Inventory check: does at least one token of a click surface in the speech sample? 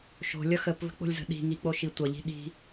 no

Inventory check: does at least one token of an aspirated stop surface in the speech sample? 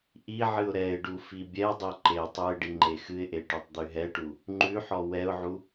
no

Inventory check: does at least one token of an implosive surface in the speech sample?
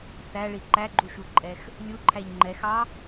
no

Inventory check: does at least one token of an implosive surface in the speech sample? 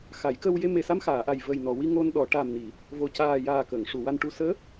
yes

